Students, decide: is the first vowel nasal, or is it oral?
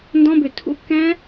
nasal